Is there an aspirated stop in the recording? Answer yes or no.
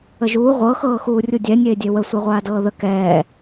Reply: no